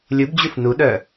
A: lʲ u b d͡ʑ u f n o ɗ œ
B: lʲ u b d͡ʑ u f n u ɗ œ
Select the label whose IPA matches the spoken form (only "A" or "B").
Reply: B